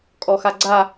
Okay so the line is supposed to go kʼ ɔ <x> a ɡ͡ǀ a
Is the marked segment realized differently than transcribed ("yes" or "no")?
no